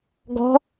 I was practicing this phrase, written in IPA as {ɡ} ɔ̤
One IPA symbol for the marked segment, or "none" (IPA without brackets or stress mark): ɡ